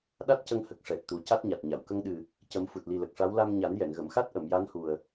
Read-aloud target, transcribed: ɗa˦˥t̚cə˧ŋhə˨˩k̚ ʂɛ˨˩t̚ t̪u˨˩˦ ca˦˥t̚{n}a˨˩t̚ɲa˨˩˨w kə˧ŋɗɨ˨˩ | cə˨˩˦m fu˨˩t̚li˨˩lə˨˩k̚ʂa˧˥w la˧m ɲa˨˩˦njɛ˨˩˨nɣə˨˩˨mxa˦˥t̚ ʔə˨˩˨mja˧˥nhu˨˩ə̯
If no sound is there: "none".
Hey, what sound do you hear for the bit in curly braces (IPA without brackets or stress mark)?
ɲ